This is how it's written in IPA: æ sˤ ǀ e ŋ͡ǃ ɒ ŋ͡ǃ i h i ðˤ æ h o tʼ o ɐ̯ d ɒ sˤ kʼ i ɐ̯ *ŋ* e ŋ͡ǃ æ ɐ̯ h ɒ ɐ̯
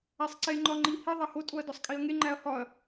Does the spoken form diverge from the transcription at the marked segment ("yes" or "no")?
no